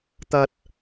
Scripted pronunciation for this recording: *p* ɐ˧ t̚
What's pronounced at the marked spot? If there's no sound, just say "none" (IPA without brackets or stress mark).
t̪